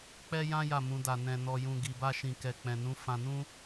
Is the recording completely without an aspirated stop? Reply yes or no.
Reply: yes